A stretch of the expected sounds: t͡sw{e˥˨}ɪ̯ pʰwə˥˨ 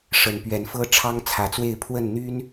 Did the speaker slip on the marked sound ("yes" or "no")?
no